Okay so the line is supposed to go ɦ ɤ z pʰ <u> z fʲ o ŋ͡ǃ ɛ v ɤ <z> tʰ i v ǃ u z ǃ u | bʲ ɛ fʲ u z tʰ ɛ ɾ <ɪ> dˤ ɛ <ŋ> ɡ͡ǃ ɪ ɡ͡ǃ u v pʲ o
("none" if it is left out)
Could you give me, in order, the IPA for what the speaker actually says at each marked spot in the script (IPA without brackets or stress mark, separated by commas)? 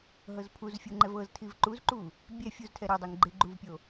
u, z, ɪ, ŋ